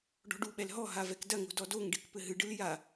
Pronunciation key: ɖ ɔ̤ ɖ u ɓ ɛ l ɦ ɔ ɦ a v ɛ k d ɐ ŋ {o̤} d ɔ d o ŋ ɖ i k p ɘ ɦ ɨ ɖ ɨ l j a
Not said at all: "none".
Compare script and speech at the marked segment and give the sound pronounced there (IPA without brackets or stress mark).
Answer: o̤